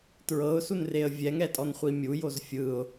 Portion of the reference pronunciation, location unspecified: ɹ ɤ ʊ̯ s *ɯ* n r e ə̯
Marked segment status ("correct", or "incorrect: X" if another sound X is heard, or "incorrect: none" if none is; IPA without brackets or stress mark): incorrect: u